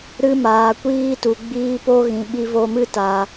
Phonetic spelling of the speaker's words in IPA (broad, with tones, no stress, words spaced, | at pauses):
ɾɨ˧maː˨kʷiː˧ tu˨ɡ͡biː˧ po˧ ɣĩ˨ɓi˧vo˧mɨ˦ ta˨